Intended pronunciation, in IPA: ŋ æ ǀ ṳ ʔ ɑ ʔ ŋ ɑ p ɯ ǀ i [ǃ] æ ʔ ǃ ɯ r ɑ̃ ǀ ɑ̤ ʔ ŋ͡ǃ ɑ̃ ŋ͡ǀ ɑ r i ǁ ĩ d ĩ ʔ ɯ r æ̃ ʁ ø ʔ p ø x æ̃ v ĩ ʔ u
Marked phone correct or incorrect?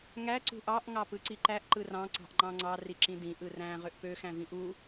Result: correct